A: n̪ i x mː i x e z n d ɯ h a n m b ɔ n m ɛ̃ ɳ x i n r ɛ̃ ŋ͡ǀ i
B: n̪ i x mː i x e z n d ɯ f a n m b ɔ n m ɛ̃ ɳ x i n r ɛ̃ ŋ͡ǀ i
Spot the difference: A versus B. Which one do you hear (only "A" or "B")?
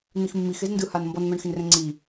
A